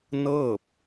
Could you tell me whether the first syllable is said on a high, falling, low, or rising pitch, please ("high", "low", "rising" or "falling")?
falling